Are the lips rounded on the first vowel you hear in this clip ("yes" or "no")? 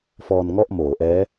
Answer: yes